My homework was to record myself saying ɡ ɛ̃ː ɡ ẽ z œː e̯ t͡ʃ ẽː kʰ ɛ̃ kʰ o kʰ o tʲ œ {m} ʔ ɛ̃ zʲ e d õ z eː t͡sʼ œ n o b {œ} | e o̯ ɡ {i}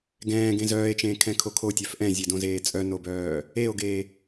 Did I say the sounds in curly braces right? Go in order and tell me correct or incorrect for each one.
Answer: incorrect: f, incorrect: œː, incorrect: e

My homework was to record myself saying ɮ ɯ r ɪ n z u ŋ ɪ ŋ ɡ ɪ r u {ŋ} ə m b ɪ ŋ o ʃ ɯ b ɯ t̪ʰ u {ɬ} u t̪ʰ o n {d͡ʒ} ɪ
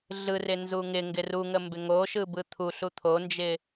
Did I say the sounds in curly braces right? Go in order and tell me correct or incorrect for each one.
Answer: correct, correct, correct

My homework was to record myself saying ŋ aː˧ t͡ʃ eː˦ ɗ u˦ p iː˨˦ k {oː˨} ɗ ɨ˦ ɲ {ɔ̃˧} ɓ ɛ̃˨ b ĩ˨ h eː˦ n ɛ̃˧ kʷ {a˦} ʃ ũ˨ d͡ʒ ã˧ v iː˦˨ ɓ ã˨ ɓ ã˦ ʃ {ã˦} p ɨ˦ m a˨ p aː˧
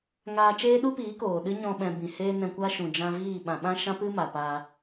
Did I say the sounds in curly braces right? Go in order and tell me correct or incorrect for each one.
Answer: correct, correct, correct, correct

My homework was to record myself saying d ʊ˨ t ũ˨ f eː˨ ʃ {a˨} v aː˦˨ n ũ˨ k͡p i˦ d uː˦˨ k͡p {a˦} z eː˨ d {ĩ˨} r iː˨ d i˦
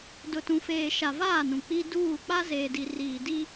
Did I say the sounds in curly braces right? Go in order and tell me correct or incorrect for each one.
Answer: correct, correct, incorrect: i˨

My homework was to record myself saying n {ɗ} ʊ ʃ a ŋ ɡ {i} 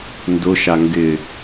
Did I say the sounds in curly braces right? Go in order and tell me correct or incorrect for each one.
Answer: incorrect: d, incorrect: ɪ

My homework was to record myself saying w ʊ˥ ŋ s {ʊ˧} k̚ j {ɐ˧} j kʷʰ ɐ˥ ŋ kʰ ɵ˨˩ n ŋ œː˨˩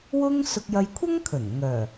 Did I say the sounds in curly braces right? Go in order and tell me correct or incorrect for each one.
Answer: correct, correct

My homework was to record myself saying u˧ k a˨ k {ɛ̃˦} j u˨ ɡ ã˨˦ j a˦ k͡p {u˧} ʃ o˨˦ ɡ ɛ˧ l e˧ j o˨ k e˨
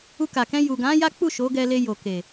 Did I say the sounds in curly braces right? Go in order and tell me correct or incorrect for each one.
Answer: incorrect: ɛ̃˧, incorrect: u˦˨

